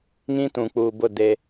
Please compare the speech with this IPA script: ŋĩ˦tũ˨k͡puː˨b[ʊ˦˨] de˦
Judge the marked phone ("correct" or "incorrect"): correct